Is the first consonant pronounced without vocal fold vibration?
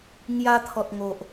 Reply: no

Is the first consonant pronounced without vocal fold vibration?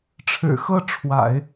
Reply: yes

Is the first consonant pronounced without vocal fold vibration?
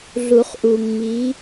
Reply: no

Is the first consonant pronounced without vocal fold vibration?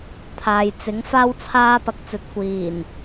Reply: yes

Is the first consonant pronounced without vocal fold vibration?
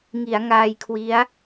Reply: no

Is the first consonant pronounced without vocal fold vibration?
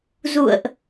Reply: no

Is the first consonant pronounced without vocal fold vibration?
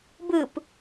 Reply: no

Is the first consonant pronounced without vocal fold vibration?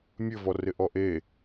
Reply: no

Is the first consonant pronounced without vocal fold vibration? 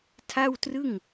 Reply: yes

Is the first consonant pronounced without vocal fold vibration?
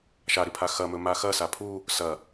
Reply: yes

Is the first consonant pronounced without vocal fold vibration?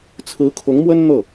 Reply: yes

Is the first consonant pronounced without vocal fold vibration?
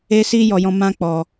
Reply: yes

